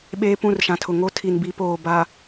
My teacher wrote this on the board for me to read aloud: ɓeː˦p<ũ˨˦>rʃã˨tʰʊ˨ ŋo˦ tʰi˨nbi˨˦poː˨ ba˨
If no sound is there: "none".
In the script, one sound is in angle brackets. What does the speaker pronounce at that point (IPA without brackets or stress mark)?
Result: ũ˦˨